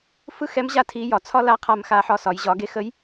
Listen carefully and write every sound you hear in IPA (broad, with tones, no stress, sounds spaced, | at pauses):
f ɯ˥ x ɛ˧˥ m ʑ a˥ tʰ i˧˥ j ɒ˩˧ t͡sʰ ɒ˥ l a˧˥ qʰ a˧ m x a˧ ħ ɒ˧ s ɒ˩˧ j ʑ ɒ˩˧ ɡ e˧ x ə˧˥ j